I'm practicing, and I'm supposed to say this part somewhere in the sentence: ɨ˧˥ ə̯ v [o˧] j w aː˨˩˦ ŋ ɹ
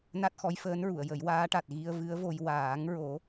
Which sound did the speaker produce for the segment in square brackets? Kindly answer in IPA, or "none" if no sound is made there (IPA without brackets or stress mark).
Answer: o˧